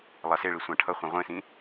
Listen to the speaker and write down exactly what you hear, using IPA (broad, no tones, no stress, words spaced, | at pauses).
lˠaseɭi sʷãʈʰʌχʷɛ̃ ʁʷẽsĩ